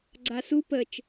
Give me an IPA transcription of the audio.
ɡ͡ǀ a s u p ə t͡ʃ

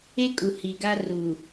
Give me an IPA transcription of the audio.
e˦ kʼ u˨ h i˨ ɡ a˦ r u˨

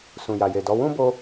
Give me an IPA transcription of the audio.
s ũ˨ j a˨ j e˨ d ɔ˨˦ w ũ˦ b o˧

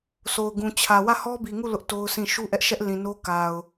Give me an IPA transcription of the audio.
sʰ o˨ ʊ̯ ɡ ũ˨ t͡ɕʰ ä˨ w ä˦˨ h ɔ˦ b i˨ ŋ u˦˨ l ʊ˦ ʔ t o˦ ʊ̯ s ĩ˦˨ ʃ u˦ ʔ ɛ˦ ʔ ʃ ɛ˦ ʔ l ĩ˨ n o˦ k a˨ ʊ̯

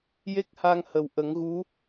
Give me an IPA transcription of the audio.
j e˦˥ k̚ h a˧ ŋ h ə˨˩ w ʔ ə˨˩˦ ŋ ɣ u˧˥

